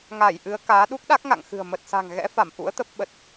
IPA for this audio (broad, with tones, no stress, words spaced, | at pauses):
ŋa˧˩jʔɨ˨˦ə̯ kaː˨˦ ɗu˦˥k̚ɗa˦˥k̚ŋa̰˧˨ŋxɨ̤˨˩ə̯ mə˨˩t̚sa̤˨˩ŋ ɣɛ̰˧˥fa˧˩m ʔṵ˧˥ə̯t̪ə˦˥p̚ ɓə˨˩t̚